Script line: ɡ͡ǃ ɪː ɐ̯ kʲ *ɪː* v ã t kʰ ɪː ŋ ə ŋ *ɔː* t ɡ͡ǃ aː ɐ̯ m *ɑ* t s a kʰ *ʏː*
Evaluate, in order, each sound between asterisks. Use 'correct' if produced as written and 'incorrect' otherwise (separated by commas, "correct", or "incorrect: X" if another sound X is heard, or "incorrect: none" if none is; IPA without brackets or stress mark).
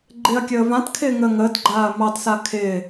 incorrect: əː, incorrect: əː, correct, incorrect: ɪː